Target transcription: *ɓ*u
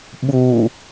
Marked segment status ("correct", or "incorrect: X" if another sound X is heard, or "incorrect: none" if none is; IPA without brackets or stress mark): correct